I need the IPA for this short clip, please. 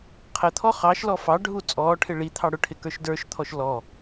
qʰət̪ʰɔ χɑʃlɔ fɑɖʱu t͡sʼɔːʈʰɪ ɭi t̪ʰɑɽʊʈʰɪ kə˞ʃdə˞ʃt̪ʰɔʃ lɔ

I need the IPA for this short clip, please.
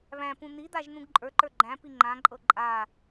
βæ̃pũ n̪id̪aʒ n̪ũɡǃʼə˞ǃə˞ ɡ͡ǃæ̃pi ŋ͡ǃãǃʼɤ ǃʼa

